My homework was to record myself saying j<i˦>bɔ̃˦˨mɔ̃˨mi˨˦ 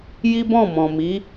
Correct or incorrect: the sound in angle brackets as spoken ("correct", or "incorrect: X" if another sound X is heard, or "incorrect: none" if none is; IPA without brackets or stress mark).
correct